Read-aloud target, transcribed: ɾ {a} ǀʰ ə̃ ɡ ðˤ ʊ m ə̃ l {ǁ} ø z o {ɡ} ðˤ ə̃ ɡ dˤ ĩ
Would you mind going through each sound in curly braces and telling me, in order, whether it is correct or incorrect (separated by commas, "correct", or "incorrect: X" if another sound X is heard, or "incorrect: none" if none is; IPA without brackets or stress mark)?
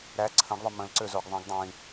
incorrect: æ, incorrect: ǀ, correct